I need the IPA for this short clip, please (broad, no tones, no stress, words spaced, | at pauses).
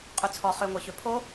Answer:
qʼyt͡sʰɔ χøŋʷɜçø pʰo